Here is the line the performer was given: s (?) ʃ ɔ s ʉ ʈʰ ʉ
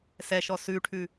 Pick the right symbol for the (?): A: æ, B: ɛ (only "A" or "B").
B